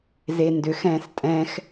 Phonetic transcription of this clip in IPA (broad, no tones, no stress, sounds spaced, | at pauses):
z e n d ʏ x ɛ̃ː s tʼ ɛ̃ x